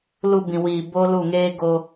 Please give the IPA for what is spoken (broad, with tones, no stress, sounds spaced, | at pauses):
l u˧ b ĩ˨ w iː˨ b o˦ l u˦˨ ŋ eː˦ ɡ o˧